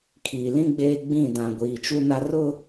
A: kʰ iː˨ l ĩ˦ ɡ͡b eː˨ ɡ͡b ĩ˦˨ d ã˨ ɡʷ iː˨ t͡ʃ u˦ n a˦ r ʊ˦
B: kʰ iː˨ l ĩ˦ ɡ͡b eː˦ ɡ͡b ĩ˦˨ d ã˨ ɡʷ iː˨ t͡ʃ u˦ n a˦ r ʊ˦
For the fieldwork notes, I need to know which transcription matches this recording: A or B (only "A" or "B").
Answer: B